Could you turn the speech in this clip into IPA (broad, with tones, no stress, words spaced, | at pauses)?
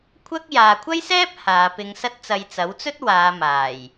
kʷʰɐ˥k̚ jaː˨kʷʰɐ˥jsɛː˥p̚ haː˨˧pɪ˧ŋsɐ˥t̚t͡sɐ˧j t͡sɐ˨˥wt͡sɵ˥t̚ waː˨˧maː˨˩j